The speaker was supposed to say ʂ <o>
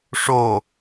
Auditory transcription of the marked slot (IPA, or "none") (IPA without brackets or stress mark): o